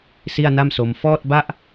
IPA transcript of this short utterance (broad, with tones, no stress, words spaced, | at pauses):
si˥˩a̯na˥˩mso˧m fɔː˥˩t̚ba˥˩ʔ